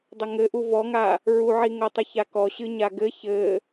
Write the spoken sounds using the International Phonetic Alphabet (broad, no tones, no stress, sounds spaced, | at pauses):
dˤ ɘ ŋ ɘ ʔ u v ɔ ŋ a | ɹ u ʕ i ŋ o tˤ ɨ ç a k ɔ ɕ ɨ ɲ a ɡ ɘ ç ɘ